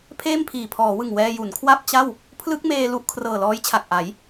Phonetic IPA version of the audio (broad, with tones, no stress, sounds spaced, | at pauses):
pʰ eː˥˩ m pʰ iː˨˩ pʰ ɔː˩˦ w ɯ˨˩ ŋ w ɛː˧ j u˩˦ n kʰ w a˥˩ p̚ t͡ɕ a˥˩ w | pʰ l ɯ˦˥ k̚ m eː˧ l u˦˥ ʔ kʰ r ɤː˨˩ l ɔː˦˥ j t͡ɕʰ a˨˩ k̚ ʔ a˩˦ j